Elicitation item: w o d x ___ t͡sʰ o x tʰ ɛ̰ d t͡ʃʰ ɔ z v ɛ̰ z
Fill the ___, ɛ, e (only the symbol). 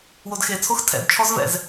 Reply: e